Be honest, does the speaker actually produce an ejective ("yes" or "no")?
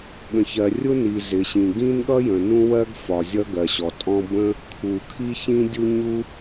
yes